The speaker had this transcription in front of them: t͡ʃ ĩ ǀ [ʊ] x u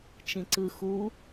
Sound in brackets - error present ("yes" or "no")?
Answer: yes